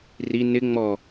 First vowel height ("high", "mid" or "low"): high